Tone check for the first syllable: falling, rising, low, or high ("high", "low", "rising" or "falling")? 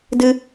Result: high